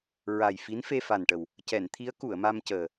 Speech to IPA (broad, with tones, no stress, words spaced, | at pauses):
ɹa˨˩jfi˧˥n fe˧fa˨˩nʈə˨˩w | cɛ˨˩˨nt̪ʰi˧˥ə̯ ku˨˩˨ə̯ma˧mcəː˨˩